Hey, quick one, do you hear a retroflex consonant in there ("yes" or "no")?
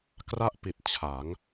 no